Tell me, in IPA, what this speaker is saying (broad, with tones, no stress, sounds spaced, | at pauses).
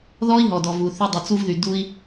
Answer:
ð ɔ˥ i̯ ɦ ɔ˩ d ɔ˩ v u˩ θ y˧ dˤ u˩ t͡s u˧ v ð y˩ d u˧ i̯